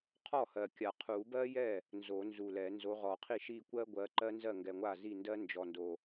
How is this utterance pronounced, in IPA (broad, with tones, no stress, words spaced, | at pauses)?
qʰɔ˥˩hɜ˨˩kʲa˨˩ qʰu˨˩˦bɜ˥jɛ˥˩ | nzo˨˩˦nzu˨˩lɛ˨˩˦ nzo˨˦ʁɔ˨˩˦qʰi˥˩ ʃi˥˩kʷɜ˥ɡʷɜ˨˦ ǃɜ˥nzɜ˥˩ŋɡɛ˨˩ŋʷa˥˩ zi˥˩ndɜ˥ nd͡ʒɔ˨˩ndo˨˩